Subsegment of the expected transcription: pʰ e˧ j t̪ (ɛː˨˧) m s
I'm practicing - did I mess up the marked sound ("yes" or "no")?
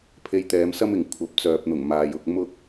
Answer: no